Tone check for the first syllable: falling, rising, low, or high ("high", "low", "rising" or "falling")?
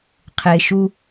low